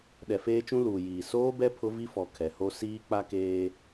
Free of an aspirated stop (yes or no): no